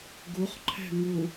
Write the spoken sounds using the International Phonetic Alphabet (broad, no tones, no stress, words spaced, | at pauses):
ɡuχǃʰɛ̤ ŋu